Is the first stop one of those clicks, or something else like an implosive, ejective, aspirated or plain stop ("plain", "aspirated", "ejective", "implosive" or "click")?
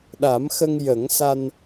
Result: implosive